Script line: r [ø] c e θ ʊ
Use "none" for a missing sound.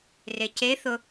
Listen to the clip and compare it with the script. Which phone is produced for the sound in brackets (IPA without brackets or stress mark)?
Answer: e